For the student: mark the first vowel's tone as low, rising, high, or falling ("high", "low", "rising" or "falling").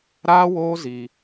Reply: high